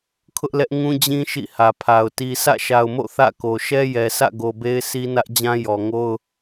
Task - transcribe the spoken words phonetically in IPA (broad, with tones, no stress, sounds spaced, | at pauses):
kʰ ʊ˦ ʔ l ɛ˦ ʔ ŋ ũ˦ d͡ʑ ĩ˦ ʃ ḭ˦˨ h ä˨ pʰ a˨ ʊ̯ t i˦ sʰ ä̰˦˨ ʃ a˨ ʊ̯ m o̰˦˨ θ ä̰˦˨ k o˨ ʃ ɛ˦ j ɛ˨ sʰ ä̰˦˨ ɡ o˨ b e˦ ɪ̯ s i˦ n ä˦ ʔ d͡ʑ ã˦ j ɔ˨ ŋ o˦ ʊ̯